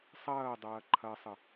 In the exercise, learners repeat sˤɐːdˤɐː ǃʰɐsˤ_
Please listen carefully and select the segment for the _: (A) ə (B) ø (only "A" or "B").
A